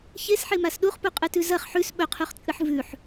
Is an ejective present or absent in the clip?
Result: present